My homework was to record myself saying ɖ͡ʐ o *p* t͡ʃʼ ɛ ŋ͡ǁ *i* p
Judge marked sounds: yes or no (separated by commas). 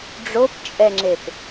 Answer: yes, no